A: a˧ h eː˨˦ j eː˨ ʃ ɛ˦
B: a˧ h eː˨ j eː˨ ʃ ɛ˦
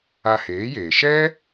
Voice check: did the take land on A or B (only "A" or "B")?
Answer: A